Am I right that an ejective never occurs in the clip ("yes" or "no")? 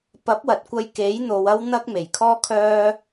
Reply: yes